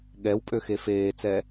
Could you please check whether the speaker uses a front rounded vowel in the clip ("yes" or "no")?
yes